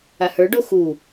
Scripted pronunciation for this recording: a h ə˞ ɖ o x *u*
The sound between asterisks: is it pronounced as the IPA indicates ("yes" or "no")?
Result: yes